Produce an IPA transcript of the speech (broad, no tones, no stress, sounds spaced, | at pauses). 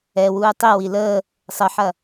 ɛ w uː tˤ i w i l əː | sˤ ə ħ ɐ